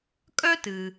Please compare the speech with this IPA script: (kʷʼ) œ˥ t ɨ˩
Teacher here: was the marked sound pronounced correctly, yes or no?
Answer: no